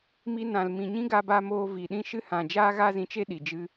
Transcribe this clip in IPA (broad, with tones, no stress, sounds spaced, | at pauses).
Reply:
m i˧ n ã˨ l m ĩ˨ ɲ ĩ˦ ɡ a˧ b a˧ m oː˧ v i˨ ɗ ĩ˦ ʃ ɨ˦ h ã˨ d͡ʒ aː˦ ɣ a˦ z ĩ˧ t͡ʃ e˦ ɗ i˨ d͡ʒ ɨ˦